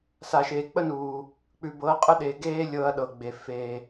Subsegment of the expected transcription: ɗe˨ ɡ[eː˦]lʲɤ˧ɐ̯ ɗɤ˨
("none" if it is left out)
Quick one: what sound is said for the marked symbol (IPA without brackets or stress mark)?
eː˦